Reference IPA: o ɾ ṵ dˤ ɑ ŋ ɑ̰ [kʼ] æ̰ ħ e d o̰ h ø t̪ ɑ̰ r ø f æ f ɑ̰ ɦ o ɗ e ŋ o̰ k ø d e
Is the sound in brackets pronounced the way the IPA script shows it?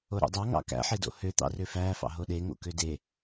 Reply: no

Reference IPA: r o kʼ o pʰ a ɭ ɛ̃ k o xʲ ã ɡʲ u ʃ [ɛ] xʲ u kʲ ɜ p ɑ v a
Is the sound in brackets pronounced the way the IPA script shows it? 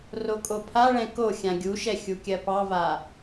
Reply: yes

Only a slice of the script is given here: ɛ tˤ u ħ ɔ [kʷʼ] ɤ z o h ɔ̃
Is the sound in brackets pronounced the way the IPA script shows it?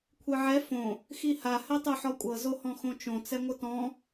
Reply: yes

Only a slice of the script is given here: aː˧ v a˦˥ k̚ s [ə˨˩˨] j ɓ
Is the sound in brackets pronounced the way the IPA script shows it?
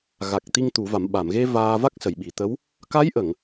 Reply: yes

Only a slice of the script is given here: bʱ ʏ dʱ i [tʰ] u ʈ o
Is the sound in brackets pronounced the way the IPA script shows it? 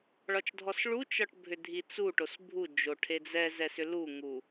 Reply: no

